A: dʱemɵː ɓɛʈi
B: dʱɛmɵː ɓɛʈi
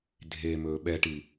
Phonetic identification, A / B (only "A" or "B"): A